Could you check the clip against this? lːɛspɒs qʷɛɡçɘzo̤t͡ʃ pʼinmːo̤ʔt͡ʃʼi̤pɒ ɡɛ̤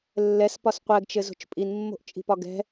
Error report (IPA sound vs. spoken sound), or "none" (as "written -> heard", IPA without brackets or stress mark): ç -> t͡ʃ